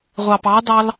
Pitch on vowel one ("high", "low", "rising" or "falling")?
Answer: low